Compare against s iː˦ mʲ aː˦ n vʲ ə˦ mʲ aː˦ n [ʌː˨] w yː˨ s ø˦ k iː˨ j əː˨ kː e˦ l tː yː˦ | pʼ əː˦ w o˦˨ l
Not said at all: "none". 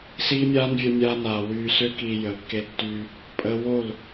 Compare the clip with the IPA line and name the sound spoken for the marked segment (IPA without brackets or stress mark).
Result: aː˨